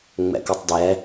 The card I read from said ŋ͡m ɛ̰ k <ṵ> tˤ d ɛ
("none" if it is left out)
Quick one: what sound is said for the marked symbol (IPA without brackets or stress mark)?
u